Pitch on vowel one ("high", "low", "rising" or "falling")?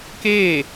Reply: falling